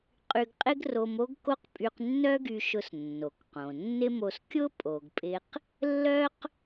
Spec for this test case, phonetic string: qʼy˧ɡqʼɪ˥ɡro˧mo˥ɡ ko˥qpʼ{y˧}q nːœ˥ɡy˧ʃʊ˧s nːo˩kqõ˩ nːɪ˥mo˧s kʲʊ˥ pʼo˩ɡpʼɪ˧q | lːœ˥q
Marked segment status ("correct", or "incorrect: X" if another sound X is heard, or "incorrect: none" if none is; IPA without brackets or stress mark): correct